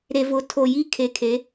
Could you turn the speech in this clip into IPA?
ɾ e˨ v ʊ˨ tʰ o˨ j i˦ kʰ e˨ kʰ e˨˦

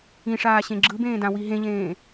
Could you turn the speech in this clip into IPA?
ĩ ʂ aː ɕ ẽ ɡ͡ǁ ɯ b ẽː d ã w i ɦ ẽ ʎ ẽː

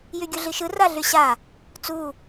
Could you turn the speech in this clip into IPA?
j y ɡʲ u ɮ i ʃ ɯ r a ɮ y ɕ a | t͡s u

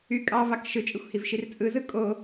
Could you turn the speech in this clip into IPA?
y kʼ ɑ v ɑ k ʃ ɯ t͡ʃʼ ɯ xʷ h i v ʃ i r t͡sʼ ɯ z ɯ kʼ o

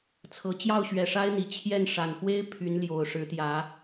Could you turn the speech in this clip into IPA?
t͡sʰ ɤ˨˩ t͡ɕ j ɑ˥˨ ʊ̯ ɕ ɥ ɛ˨˩ ʂ a˦ ɪ̯ n̪ i˨˩ t͡ɕʰ j ɛ˥˨ n ʂ a˨˩ n x w e˦ ɪ̯ pʰ y˨˦ n l j o˨˩ ʊ̯ ʂ ɻ̩˨˦ t̪ j ä˨˦

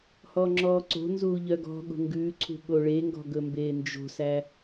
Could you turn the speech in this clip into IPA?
h ɔ ŋ͡ǁ ɔː ǀ o̤ n z uː ʎ œ ɡ ɔ̤ ɠ o̤ ŋ ɡ ʉː ǀʰ ṳ ɠ o ɭ e ŋ ɡ ɔ̤ ɡ ɵ m b eː n d͡ʒ o̤ s æ

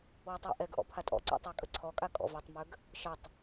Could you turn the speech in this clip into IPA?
w ɛ tˤ w ə̰ ʔ ɛ ɡ ʔ ɔ̰ pʰ a tʼ ɔ̰ ǀ a̰ tˤ a kʼ ə ǀʰ ɔ kʼ a kʼ ɔ̰ v ø tˤ m ø ɡ | ʃ ə tˤ

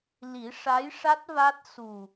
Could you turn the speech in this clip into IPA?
l i˨˩˦ ʂ a˧˥ j ʂ a˦˥ t̚ v a˦˥ t̚ s u˨˩

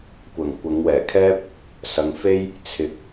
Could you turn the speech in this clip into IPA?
kʷ ɐ˨˩ ŋ kʷ ɐ˨˧ ŋ w ɛː˨˩ kʰ ɛː˥ p̚ | s ɐ˨ ŋ f e˥ j | t͡sʰ ɪ˧ k̚

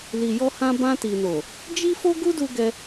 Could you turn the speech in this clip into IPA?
l i˨ j ɔ˧ h ã˧ b ã˧ t i˨ n o˨ | d͡ʒ i˦ f o˦ ɡ u˦ d u˧ ɡ ɛ˧

